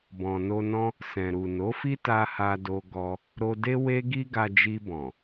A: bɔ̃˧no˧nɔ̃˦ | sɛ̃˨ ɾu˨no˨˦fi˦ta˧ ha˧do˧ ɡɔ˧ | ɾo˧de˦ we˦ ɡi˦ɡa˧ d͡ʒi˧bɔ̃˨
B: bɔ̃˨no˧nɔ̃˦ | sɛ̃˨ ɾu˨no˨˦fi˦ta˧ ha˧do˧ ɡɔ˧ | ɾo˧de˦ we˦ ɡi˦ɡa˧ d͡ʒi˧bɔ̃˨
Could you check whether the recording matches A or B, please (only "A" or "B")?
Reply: B